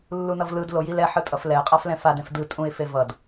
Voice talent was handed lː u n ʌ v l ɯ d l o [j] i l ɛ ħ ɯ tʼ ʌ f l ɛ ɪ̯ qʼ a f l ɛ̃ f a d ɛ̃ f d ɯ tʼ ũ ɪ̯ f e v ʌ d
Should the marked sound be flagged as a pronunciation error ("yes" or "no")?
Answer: no